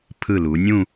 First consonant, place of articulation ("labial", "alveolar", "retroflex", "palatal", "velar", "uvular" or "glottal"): labial